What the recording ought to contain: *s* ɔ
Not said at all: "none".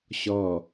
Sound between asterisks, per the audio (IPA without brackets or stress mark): ɕ